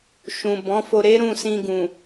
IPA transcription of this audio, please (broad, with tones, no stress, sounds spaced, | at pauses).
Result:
ʃ ũ˨ b ɔ̃˨˦ f o˧ ɾ e˦ ɾ ũ˦˨ s ĩ˧ ɡ ũ˨